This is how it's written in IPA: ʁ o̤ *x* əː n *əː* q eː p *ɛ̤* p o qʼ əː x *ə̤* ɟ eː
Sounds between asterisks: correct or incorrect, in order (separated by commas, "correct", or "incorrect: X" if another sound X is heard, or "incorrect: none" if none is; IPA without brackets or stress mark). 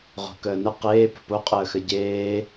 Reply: incorrect: k, incorrect: ə, incorrect: ə̤, incorrect: ə